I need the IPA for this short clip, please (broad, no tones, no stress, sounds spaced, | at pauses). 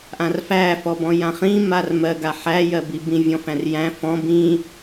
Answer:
ʔ ã r f æ f ɔ b ɔ̃ j ã χ ĩ m a r m ɜ ɡ a ħ æ j ɜ b i b ĩ vʲ ɔ̃ f æ̃ r j æ̃ f ɔ̃ b ĩ